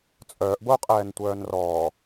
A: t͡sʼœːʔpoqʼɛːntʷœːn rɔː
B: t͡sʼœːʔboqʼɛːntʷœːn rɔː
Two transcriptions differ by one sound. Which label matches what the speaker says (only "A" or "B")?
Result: B